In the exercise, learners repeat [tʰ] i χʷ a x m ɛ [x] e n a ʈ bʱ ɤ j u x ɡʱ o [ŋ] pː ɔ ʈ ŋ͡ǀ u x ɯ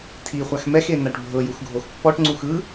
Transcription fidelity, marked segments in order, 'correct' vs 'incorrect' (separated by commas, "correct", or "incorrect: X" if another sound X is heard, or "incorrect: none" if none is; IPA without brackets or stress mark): correct, correct, incorrect: x